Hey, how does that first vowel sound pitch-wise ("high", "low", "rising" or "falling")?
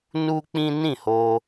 high